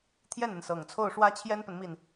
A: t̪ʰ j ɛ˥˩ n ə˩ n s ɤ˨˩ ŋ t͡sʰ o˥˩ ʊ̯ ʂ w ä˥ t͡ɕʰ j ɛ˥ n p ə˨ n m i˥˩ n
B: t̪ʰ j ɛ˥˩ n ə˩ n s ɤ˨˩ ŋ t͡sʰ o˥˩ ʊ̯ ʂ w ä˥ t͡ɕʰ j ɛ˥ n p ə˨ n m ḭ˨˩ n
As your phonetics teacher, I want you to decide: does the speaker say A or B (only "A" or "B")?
A